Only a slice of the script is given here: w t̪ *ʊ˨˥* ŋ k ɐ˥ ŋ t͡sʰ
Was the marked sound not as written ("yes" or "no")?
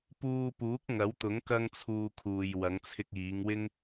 no